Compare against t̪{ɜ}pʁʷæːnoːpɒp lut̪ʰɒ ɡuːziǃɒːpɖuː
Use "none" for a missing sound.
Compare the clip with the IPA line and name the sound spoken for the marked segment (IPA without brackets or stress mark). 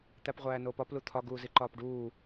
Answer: æ